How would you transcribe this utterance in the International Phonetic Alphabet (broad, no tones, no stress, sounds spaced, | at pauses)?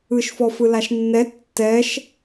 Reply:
ɯ ʃ f ɔ f ɯ l a ʃ nː ɛ tː ɛ ʃ